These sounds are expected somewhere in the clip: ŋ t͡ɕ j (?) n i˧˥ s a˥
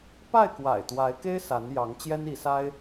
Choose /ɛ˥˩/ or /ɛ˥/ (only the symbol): ɛ˥